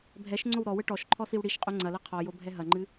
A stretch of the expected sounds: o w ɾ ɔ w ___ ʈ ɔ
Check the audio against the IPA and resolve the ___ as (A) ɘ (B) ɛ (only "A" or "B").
A